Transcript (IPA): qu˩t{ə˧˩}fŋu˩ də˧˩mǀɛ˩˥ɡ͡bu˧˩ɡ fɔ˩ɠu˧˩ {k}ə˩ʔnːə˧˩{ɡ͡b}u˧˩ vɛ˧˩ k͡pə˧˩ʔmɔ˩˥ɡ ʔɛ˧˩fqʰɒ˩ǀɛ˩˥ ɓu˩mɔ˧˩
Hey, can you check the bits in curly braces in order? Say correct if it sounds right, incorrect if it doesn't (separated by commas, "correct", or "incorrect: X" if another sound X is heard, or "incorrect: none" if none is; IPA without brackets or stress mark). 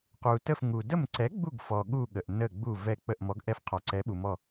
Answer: correct, incorrect: ɠ, correct